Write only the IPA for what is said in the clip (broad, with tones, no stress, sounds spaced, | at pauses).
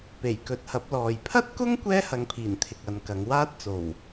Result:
p e˨˩ j k ɵ˨ t̚ h ɐ˨˥ p̚ l ɔː˨ j pʰ ɐ˥ t̚ k ʊ˥ ŋ kʷ ɛː˥ h ɐ˨˧ ŋ pʰ iː˨˩ n t̪ʰ ɪ˨ k̚ ɐ˨˧ n k ɐ˨˧ ŋ w aː˥ t̚ t͡s o˨˩ w